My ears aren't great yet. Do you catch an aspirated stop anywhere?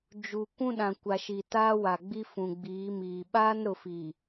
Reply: no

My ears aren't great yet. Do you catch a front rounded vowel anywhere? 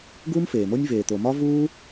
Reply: no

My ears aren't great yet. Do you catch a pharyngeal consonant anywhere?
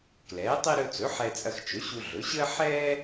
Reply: yes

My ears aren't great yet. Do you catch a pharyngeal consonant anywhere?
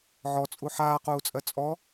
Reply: yes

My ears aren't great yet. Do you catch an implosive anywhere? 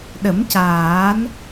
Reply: yes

